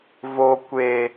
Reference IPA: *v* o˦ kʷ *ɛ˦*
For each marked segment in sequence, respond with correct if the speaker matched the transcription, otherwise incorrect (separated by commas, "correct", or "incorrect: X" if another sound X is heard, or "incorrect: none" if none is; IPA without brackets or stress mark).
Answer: correct, incorrect: e˦